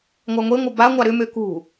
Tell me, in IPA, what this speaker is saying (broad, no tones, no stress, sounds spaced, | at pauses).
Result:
ŋʷ a ŋʷ e ŋʷ ɐ b a ŋʷ a ɾ ʏ m ø k ṳ